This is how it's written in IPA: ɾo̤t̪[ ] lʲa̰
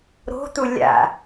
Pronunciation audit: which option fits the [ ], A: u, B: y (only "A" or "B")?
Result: A